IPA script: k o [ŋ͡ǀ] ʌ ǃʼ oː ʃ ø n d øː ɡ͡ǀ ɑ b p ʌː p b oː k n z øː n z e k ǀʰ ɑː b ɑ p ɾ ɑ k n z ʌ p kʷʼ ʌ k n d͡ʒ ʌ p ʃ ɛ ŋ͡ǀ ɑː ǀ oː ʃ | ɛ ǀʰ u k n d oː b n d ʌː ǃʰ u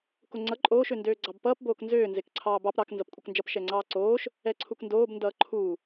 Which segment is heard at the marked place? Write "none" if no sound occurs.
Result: ŋ͡ǀ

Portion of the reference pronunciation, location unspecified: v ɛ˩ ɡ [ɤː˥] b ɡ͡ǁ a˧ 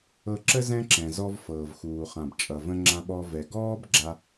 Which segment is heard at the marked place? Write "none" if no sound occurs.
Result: ɔː˥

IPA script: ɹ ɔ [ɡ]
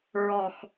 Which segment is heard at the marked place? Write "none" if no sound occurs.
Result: x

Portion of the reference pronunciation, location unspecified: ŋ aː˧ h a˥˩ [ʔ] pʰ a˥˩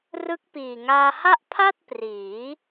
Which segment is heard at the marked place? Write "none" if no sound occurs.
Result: ʔ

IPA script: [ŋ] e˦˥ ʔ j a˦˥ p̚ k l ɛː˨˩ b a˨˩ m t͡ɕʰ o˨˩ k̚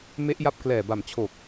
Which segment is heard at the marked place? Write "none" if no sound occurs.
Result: m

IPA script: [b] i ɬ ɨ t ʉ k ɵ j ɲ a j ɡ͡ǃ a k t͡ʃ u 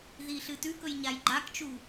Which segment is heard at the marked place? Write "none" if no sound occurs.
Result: ð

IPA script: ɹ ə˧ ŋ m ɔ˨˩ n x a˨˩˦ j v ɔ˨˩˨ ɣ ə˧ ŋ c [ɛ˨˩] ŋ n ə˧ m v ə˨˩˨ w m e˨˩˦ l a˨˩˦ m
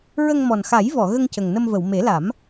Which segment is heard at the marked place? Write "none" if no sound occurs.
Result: ə˨˩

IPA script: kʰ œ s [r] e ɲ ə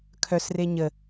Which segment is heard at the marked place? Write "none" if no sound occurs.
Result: r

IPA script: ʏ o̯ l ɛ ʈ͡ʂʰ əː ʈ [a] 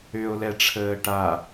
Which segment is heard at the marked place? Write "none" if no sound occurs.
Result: a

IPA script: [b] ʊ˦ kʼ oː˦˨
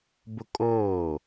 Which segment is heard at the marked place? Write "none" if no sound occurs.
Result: b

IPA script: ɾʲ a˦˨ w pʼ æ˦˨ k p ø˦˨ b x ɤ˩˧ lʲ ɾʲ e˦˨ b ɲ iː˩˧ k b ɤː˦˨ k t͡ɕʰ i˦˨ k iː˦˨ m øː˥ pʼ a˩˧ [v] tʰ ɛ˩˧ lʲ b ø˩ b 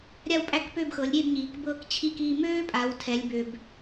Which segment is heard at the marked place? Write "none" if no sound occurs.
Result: w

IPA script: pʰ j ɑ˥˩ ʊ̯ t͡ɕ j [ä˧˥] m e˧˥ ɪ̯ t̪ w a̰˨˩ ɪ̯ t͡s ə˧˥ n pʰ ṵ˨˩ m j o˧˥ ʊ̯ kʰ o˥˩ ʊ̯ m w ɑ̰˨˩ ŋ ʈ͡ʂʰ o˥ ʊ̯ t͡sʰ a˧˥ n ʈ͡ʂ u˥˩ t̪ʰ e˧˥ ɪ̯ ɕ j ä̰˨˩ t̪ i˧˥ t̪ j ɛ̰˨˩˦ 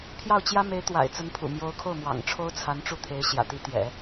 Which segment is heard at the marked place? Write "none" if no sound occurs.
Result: ä˥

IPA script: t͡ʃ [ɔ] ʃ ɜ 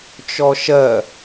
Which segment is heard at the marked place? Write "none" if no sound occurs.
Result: ɔ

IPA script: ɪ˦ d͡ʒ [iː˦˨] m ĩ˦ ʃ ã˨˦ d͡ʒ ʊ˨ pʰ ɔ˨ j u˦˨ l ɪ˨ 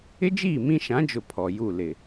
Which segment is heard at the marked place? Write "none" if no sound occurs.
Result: iː˦˨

